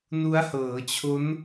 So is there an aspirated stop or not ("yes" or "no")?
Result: yes